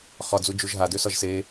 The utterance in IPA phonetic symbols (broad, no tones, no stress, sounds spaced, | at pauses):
χ ɒ d͡z u d͡ʒ u ʒ ɦ a d ø s ɒ ʒ s e